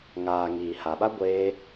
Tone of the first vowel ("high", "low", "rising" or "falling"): low